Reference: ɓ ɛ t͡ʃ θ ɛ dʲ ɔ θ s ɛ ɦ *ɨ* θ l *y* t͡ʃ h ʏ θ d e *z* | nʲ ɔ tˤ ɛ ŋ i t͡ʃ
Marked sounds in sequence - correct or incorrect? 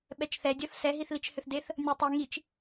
incorrect: i, incorrect: i, incorrect: θ

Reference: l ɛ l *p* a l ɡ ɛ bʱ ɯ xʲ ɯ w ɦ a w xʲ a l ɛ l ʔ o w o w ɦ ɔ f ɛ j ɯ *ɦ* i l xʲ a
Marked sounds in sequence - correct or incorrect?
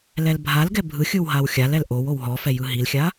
incorrect: bʱ, correct

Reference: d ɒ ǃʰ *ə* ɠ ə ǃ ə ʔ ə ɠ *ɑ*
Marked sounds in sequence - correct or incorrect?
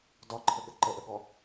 correct, incorrect: ɔ

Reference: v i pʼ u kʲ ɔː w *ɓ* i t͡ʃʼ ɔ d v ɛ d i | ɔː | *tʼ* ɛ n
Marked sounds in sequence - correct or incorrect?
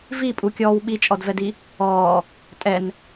correct, correct

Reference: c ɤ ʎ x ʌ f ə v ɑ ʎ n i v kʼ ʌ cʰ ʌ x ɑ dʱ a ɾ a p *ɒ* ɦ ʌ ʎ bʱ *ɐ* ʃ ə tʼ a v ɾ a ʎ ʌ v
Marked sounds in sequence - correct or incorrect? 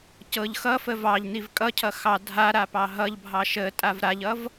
incorrect: ɑ, incorrect: ɑ

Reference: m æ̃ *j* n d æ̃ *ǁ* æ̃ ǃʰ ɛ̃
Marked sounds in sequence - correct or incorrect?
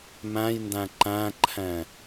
correct, incorrect: ǃ

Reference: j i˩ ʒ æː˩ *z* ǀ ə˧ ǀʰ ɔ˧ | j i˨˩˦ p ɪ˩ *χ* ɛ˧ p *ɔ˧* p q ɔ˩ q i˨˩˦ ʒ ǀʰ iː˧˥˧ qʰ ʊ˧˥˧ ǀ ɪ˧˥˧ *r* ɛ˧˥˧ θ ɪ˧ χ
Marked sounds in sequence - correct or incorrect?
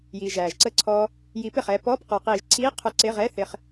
incorrect: ʒ, correct, incorrect: ɔ˧˥˧, incorrect: ʁ

